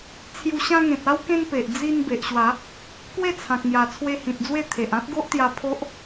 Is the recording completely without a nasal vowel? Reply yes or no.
no